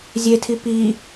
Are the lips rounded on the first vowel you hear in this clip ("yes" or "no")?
no